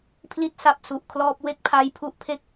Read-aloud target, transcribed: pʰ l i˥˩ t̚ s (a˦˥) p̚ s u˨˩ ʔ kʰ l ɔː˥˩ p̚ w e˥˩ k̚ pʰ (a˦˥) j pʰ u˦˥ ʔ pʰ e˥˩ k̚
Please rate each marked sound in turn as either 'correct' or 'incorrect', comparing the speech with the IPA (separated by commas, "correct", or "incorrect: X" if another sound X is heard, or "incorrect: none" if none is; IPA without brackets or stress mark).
correct, correct